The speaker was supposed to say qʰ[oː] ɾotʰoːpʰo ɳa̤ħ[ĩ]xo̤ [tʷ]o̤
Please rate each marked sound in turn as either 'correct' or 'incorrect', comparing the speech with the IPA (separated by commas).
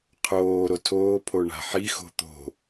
correct, incorrect, incorrect